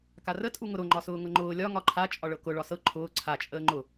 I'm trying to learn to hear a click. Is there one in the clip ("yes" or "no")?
yes